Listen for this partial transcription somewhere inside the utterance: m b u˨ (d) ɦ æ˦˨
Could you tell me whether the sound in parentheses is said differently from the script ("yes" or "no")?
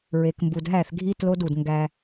no